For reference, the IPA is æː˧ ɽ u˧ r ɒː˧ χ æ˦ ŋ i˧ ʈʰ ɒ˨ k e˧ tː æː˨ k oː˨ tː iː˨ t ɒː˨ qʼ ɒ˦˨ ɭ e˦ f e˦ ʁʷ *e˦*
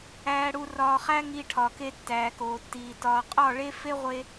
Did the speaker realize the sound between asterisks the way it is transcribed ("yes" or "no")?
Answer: no